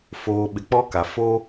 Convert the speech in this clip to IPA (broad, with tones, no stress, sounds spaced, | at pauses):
f oː˨ ɓ ɪ˨ k͡p ɔ˦ k a˨ f o˦